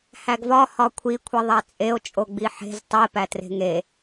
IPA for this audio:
h æ ɡ v ɒ h ɒ kʷʰ i kʷʰ i ðˤ æ t͡sʼ e o̯ t͡ʃʼ o ɡ͡b i ħ e̤ z tˤ i p æ t r e̤ ŋ e

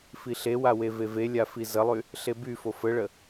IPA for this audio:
f i ɬ e w a w e v e v e lʲ a f i z ə lˠ y | ɬ e b y f o f ə ɭ ə

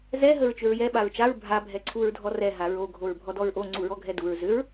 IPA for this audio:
z ɛ ɦ ə ɹ t͡ʃ ʏ ɹ j ɛ ɓ a ɹ t͡ʃ a ɹ bʱ a bʱ ɛ ǀʰ u ɹ dʱ ɔ r ɛ ɦ a ɹ o ɡʱ o ɹ bʱ ɔ d ɔ ɹ ʔ o ŋ͡ǀ u ɹ ɔ ɡʱ ɛ d u ɹ z ʏ ɹ

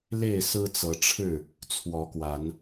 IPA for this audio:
l e˥˨ ɪ̯ s ɹ̩˦ t͡s ɤ˨˦ ʈ͡ʂʰ ɻ̩˥˨ | t͡sʰ w ɔ˨˦ k w a˨˦ n

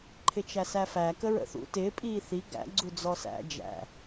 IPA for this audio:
ǃʰ ɪ t͡ʃ æ s æ f æ k ə ɹ ə̰ θ ṵ t ɪː pʼ iː θ i ɡ æ̰ ɡ͡ǀ u d͡z ɔ s æ̰ d͡ʒ æ̰

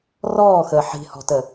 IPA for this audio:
r ɔː x əː ħ i̤ h ɔ̤ t ə

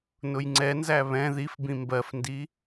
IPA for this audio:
n ʊ j ŋ͡ǀ ɛ n z æ β ɛ̃ ð i f b ĩ m b ɜ f n d i

